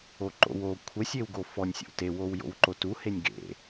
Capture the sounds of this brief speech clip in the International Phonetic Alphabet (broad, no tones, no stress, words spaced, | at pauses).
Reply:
oǃo̰w o kʷʰɛ sʲewɡofɔnʲ sʲo̰te wowjo̰wǃotu henʲɡḛ